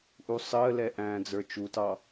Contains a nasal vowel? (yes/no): yes